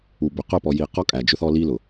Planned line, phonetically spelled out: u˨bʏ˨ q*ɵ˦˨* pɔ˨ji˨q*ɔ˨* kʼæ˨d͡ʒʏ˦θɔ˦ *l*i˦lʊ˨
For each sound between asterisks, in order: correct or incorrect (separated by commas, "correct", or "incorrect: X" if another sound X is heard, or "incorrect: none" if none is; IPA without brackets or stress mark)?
incorrect: ʊ˦˨, incorrect: ɔ˦, correct